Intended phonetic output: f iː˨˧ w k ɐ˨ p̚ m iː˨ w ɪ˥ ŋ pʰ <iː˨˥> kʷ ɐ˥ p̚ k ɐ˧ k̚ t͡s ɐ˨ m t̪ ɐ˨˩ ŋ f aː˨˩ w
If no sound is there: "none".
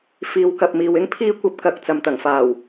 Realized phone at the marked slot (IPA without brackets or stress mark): iː˥